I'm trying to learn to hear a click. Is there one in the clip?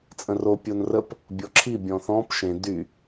yes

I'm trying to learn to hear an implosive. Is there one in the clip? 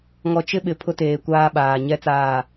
yes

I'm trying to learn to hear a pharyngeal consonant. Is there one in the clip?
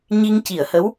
no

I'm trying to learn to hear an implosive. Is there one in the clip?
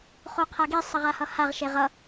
no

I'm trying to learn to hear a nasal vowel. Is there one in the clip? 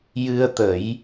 no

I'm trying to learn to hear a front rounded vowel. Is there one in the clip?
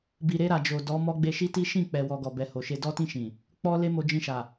no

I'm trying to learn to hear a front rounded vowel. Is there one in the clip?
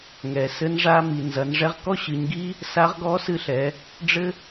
no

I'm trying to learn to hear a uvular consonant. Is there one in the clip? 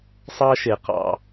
yes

